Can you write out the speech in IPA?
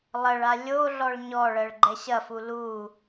lˠ ɐ ɭ a lʲ o ɮ ɔ ɭ ɲ ɔ ɭ ɜ ɭ ɡ͡ǃ ɛ ɕ ɐ f u l u

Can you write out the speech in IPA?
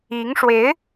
i˧˥ ŋ ʂ w e˧˥ ɪ̯

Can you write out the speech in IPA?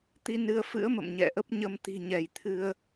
t̪ i˧ n ɨ˧ ə̯ f ɨ̰˧˥ ə̯ m ə̰˧˨ m ɲ ɛ̰˧˨ ʔ ə˦˥ p̚ ɲ ə˧ m t̪ i̤˨˩ ɲ ɛ˧˩ j t̪ʰ ɨ˧ ə̯

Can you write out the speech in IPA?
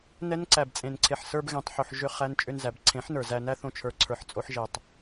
n ɛ˦ n ǀ æ˨ b t͡sʼ ẽ˨ n ǀʰ e˨ ħ s ə˞˧ b ɣ ẽ˨ tˤ ħ o˨ ħ ʒ ʏ˦˨ χ æ˦ n t͡ʃʼ ʏ˧ n z æ˨ b ǀʰ ẽ˨˦ ħ n ə˞˨ z æ˧ n æ˦ θ õ˧ t͡ʃʰ ə˞˨ ǀʰ ə˞˨ ħ t͡sʼ o˧ ħ ʒ e˨ tˤ

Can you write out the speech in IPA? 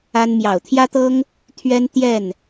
a˦ n m j ɑ˨˩ ʊ̯ t̪ʰ j ä˦ t̪ ɤ˦ ŋ | t̪ʰ ɥ ɛ˦ n t̪ j ɛ˥˨ n

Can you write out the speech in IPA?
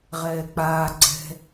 ʁ ɛː k͡p aː ɡ͡ǀ ɛ̤

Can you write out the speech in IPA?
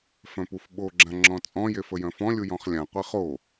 f œ̃ p u f ɓ o ɡ͡ǁ ã ŋ͡ǁ ɔ̃ t͡sʼ ɔ̃ j e f ə j œ̃ f ɔ̃ lʲ u j ɔ̃ χ lʲ ã qʷ e χ o

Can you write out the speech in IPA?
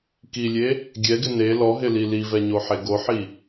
k i lʲ e | ɡʲ ɛ ɡ ɪ n e l ɔ ɦ ɪ l i l i v ɛ ɲ o ħ e ɡ o ħ i

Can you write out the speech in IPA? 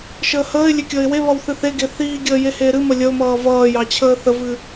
ʃ əː h əː ɪ̯ lʲ e kʲ əː ɪ̯ w e β ʌ w θ ɨ θ e ɡ e θ iː ɡʲ əː j e h eː ɾ ɨ m ə lʲ ə ʊ̯ m ʌː v ʌː j ɑ t͡ɕʰ əː θ ə v ɨ

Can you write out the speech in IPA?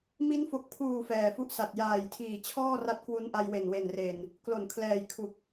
m i˦˥ n f o˨˩ k̚ pʰ uː˨˩ f ɛː˨˩ f u˦˥ ʔ s a˨˩ t̚ j aː˨˩ j tʰ iː˨˩ t͡ɕʰ ɔː˥˩ r a˦˥ t̚ k w u˦˥ n ʔ a˧ j w e˨˩ n w e˨˩ n r e˨˩ n | k l o˩˦ n kʰ l ɛː˨˩ j kʰ u˨˩ k̚

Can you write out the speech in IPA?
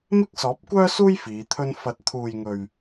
m ɪ˥ k̚ s ɔː˨˥ p̚ kʷ œː˥ s uː˥ j f iː˨˧ t̪ʰ ɵ˥ n f ɐ˨˥ t̚ t̪ʰ uː˨ j ŋ ɵ˨ ɥ

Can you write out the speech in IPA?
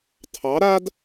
tʰ ɑ ɾ a d

